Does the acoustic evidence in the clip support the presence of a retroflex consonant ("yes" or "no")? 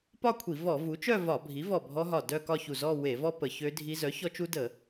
no